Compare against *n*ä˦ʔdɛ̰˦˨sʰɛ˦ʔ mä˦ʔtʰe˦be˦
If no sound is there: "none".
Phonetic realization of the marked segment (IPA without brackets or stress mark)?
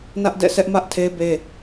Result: n